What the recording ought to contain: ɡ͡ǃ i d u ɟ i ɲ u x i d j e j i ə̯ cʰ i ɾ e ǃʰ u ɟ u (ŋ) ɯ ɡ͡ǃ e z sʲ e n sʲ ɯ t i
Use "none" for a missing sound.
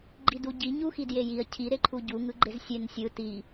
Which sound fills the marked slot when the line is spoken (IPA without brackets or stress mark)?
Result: ŋ